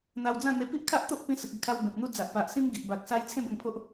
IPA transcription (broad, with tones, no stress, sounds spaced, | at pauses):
n̪ a˧ w d͡z ã˥˧ n̪ e˧ p i˦ ʔ kʰ a˦ ʔ t̪ o˦ ʔ p ĩ˧ s ə˨ k̚ i˧ kʰ a˧ w b ẽ˨ p̚ n̪ u˦ d͡z a˨ ʔ p a˨ ʔ s ĩ˦ m ɡ i˨ ʔ b a˨ k̚ s a˧ j t͡sʰ ẽ˦ b ə˧ ŋ pʰ o˦ ʔ